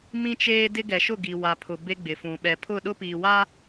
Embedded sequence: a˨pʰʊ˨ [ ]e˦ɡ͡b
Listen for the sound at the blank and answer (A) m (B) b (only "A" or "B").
B